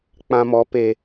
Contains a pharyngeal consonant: no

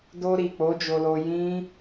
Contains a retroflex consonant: no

